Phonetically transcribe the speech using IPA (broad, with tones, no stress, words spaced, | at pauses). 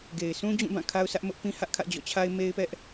ɡe˨ɪ̯sʰũ˦d͡ʑũ˦˨bã˦˨ kʰa˦ʊ̯sʰä˦ʔmʊ˦ʔpĩ˦ hä˦ʔkʰä̰˦˨ d͡ʑɔ̰˦˨t͡ɕʰa˦ɪ̯ me˦ɪ̯pɛ˦ʔ